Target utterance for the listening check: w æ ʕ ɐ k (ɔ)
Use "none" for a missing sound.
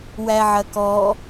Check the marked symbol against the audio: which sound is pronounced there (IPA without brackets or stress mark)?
ɔ